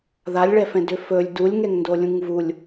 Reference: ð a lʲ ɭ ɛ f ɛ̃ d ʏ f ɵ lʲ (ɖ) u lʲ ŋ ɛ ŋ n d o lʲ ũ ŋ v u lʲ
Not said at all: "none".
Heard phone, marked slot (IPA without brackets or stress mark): d